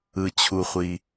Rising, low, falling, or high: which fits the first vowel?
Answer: low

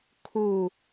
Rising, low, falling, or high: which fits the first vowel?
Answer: falling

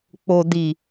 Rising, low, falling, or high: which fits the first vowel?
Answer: low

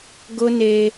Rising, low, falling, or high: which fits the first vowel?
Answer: high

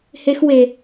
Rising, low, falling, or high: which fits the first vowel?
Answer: high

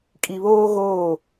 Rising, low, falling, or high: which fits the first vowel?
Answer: low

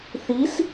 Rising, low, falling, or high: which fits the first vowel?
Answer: rising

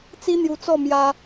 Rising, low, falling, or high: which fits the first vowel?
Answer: high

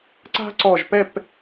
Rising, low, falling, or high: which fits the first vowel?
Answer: high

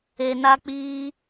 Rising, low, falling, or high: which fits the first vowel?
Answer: low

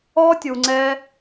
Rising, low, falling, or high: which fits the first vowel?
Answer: high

